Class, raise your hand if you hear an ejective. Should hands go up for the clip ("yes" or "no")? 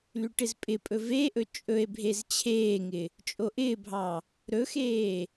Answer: yes